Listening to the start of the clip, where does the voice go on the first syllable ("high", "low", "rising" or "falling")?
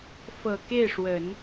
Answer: low